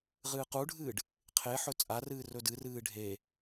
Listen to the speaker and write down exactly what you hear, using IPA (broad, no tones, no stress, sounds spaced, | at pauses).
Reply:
ʁ ɨː q u ɖʱ ɨː ɖ | qʰ e ħ ɵ t͡sʼ a r ɨː r ɵ d ɨ r ɨː ɖʱ e